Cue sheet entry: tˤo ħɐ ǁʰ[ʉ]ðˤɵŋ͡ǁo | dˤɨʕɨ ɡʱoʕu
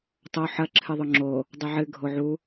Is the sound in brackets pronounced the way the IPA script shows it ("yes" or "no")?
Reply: no